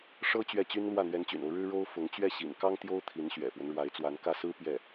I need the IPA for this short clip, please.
ʂ ɤ˥ t͡ɕ ɥ ɛ˥˩ t͡ɕ y˥ n l w ä˥˩ n̪ ɥ ɛ˧˥ n t͡ɕ y̰˨˩ n o˦ ʊ̯ ɻ ɻ̩˥ ɻ o˥ ʊ̯ f ʊ˧˥ ŋ t͡ɕ ɥ ɛ˥˩ ɕ ḭ˨˩ n k ɑ˥ ŋ t̪ j o˥ ʊ̯ t̪ʰ i˧˥ n ɕ ɥ ɛ̰˨˩ f w ə˦ n ɻ w a˧˥ ɪ̯ t͡s w a˧˥ n k ä˥˩ s ɹ̩˥ p j ɛ˥˩

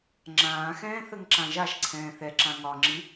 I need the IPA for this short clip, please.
ŋ͡ǁ ãː x ɛ̃ː θ ə ŋ ǁ ã ʒ a ʃ ǀʰ ɛ̃ː θ ɛ ǁ ã ŋ ɒ ŋ͡ǁ i

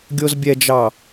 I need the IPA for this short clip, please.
ɡʲ o z bʲ ɛ d͡ʒ ɑ

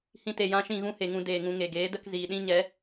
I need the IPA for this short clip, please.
h ĩ˧ t e˨ j ã˧ ʃ ĩ˦˨ ɣ ũ˦ h e˨ ŋ ũ˧ d eː˨ ŋ ũ˧ ŋ e˨ ɡ eː˨˦ d ə˧ k z iː˨ ɗ ĩ˦ ɲ ɛ˨˦

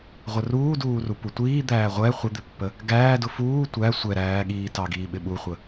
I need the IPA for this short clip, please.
ʁʷ ə r uː d uː r u p u tʷ iː d̪ æː ʁʷ ɛ χʷ ə d̪ ɪ pː ə | ɡ æː d ʊ f uː tʷ æ sʷ ɛ ɾ æː ɠ iː t ɑ ɡ iː ɓ ɪ ɓ u χʷ ə

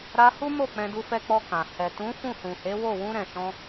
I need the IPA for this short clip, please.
ɾ a˧ h u˦ m o˦˨ k͡p ɛ̃˧ d u˧ f ɛ˧ k͡p ɔ˧ k ã˨ h ɛ˨ t ũ˨˦ f ũ˦˨ h ũ˨ h e˨˦ w o˦˨ w ũ˧ ɾ ɛ̃˨ ʃ ɔ̃˧

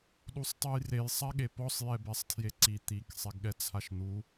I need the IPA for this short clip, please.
ɗ u sˤ tˤ ɯ j r e j sˤ a ɠ e p ɔ sˤ j ɛ b ɛ sˤ tʰ j e ǀ i t̪ i k sˤ e ɡ ɠ ɛ t͡sʰ a ʃ n̪ u

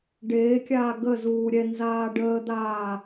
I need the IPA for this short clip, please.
ɖ eː kʲ aː ɡ ə z uː ɾʲ ɛ n z aː ɖ əː d̪ aː

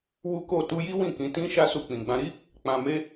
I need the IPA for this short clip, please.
w u˦ k o˦˨ t u˧ j i˦ w ĩ˦˨ k ĩ˨˦ t ĩ˦ ʃ a˦ s u˧ k͡p ĩ˨ ɡ͡b ã˧ ɾ i˦ | k͡p ã˧ m e˦

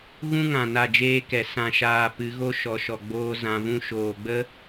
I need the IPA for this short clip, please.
ɣ ũ˦ ŋ ã˨ n a˦˨ d͡ʒ eː˦ k ɛ˨ s ã˨ ʃ aː˨ p ɨ˨˦ ɣ o˦ ʃ ɔ˨ ʃ ɔ˨ ɡ͡b oː˧ z ã˨ v ũ˧ ʃ oː˨ ɡ͡b ə˦

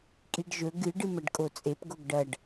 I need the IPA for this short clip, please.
kʼ i ɖ ʒ ɵ ɡ ɨ ɖ ɨ m ɐ ɖ kʼ o t͡sʼ e p ɡ o ɡ ɖ ɐ ɖ

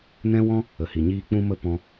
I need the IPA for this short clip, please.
n ɛ̃˦ w ɔ̃˦ | ə˨ h i˨ ɲ iː˦ k͡p ũ˦ m ə˦ p ɔ̃˧

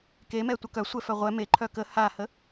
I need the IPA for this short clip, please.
k e m ɛ tʷ ə k œ sʷ ɛ f œ ʁʷ ɛ m e ǃʰ œ k ə h a h ə

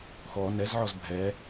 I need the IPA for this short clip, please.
x ɔ n ɛ z ʕ ɔ z bʱ ɛ

